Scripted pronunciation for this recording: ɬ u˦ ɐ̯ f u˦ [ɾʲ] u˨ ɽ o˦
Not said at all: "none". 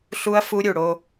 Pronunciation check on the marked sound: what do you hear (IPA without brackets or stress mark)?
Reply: ɾʲ